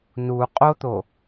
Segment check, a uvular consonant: present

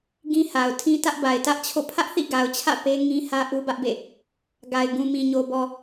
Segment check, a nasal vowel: present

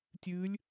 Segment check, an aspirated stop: absent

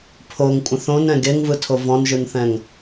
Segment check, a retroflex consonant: absent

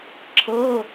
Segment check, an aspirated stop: present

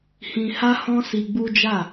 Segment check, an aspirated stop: absent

